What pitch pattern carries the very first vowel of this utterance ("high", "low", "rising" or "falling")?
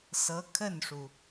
rising